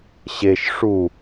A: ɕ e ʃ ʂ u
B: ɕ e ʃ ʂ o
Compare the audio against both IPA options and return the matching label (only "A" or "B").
A